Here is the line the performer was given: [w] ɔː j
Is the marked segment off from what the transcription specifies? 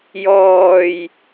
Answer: yes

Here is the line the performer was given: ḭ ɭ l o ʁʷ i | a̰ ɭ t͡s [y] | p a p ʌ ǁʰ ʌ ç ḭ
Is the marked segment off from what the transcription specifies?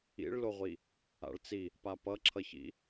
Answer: yes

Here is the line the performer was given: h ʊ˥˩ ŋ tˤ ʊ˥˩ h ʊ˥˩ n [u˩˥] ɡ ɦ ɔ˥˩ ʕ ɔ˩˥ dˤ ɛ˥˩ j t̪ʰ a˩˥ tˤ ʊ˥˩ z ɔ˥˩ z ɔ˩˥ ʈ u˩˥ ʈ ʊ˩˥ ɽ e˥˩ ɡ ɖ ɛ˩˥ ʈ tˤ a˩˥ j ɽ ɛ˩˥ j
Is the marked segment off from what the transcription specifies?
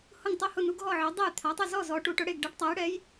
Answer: no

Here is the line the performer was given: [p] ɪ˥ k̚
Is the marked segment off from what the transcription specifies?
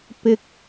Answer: no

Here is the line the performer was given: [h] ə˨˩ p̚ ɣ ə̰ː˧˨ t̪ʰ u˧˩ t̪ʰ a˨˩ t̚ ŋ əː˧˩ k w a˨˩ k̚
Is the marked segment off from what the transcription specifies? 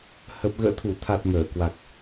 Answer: no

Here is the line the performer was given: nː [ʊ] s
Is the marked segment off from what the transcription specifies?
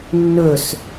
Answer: yes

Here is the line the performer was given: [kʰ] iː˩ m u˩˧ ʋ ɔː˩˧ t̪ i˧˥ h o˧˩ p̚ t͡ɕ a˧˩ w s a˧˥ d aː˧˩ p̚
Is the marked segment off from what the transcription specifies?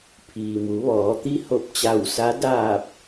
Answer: yes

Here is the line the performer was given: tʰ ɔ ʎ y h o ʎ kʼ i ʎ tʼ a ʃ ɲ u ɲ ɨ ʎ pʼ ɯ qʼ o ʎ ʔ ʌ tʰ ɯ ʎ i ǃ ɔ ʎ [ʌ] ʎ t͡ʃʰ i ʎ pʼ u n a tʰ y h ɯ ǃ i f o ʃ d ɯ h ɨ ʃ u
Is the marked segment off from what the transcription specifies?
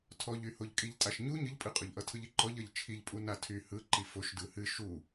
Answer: no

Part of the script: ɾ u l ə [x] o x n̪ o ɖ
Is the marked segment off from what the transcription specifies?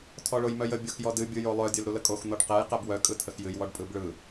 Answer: yes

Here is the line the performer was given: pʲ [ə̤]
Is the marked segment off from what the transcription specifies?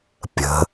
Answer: no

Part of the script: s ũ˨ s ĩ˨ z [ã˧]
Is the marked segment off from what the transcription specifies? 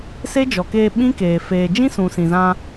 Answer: no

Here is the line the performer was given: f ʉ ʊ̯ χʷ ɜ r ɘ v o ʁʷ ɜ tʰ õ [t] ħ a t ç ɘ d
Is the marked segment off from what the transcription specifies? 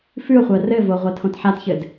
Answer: no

